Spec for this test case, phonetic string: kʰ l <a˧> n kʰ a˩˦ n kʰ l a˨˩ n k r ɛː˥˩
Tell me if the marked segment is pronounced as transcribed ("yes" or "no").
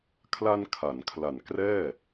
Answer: yes